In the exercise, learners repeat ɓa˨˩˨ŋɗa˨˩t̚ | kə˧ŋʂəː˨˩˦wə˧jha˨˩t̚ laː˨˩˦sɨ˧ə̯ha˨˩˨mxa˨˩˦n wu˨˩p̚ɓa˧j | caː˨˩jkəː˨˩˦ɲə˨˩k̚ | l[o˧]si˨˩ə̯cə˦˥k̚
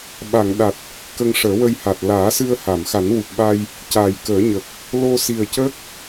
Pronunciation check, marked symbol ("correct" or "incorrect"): correct